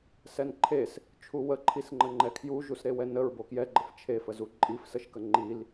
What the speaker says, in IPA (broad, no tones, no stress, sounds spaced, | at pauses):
s ɛ n ǃʰ e s | t͡ʃʰ u w ə ǃʰ i s ŋ͡ǃ ə ŋ͡ǃ ɛ kʰ j u ʒ u s ɾ e w ɛ n ə ɹ b o k j ɛ ɡ͡ǃ ə f t͡ʃʰ e f ə z u ǃʼ i f s ə ʃ k ə ŋ͡ǃ i l